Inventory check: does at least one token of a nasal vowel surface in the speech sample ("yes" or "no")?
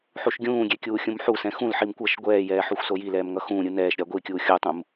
yes